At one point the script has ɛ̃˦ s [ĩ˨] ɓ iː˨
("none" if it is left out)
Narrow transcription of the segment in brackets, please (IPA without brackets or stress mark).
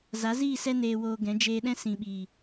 ĩ˨